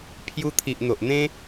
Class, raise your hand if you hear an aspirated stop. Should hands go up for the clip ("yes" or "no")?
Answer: yes